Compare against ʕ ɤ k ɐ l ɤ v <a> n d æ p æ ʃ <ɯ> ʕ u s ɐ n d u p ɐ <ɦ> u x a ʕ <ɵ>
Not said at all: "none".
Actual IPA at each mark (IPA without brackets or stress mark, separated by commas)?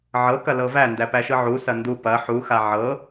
æ, ɯ, ħ, ɤ